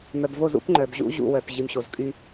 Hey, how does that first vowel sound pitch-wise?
low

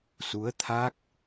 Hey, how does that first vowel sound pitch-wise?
rising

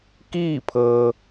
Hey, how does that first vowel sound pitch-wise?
falling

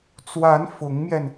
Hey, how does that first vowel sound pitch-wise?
rising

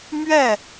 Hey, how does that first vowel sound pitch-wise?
falling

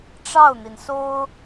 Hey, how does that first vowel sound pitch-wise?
falling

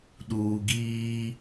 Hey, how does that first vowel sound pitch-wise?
low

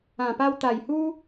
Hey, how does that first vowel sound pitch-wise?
low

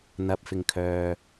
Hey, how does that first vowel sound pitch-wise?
rising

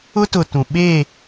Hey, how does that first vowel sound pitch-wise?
high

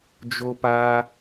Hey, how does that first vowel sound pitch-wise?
high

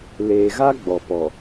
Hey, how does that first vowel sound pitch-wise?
low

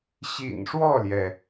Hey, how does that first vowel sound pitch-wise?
low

